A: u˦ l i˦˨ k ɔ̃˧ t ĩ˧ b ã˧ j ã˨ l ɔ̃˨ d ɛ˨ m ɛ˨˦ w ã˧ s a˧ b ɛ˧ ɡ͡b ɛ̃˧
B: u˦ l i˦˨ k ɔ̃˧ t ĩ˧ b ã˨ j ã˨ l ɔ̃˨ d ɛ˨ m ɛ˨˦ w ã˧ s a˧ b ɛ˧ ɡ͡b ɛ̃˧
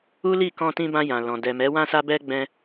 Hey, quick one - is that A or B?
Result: A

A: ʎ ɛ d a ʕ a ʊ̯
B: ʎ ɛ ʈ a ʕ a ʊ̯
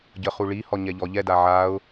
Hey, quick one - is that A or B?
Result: A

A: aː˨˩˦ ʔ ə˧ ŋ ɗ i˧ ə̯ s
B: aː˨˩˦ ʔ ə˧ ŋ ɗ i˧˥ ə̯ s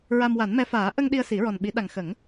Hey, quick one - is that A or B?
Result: A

